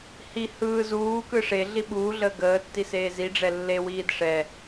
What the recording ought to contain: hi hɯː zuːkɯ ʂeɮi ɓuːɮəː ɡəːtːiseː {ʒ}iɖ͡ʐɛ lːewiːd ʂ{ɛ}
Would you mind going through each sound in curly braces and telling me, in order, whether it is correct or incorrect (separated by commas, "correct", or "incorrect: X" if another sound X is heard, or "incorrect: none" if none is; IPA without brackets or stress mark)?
incorrect: z, correct